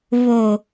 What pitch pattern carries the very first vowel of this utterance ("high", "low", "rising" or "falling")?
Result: low